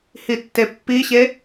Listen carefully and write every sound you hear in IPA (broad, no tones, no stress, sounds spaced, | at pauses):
h i tː e pː i ɕ e